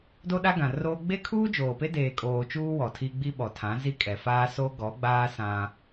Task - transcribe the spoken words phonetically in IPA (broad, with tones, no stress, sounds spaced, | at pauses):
d o˦ ɗ a˦ ɡ ã˨ r oː˦ ɡ͡b e˦ kʰ uː˦ d͡ʒ oː˨ p e˦ d eː˨ kʼ oː˨ t͡ʃ uː˦ w ɔ˨ tʰ i˦ ɡ͡b i˦ ɓ ɔ˨ tʰ ã˨˦ z i˦ kʼ ɛ˨ f aː˦ s o˦ ɡ ɔ˨˦ ɡ͡b aː˦ s ã˦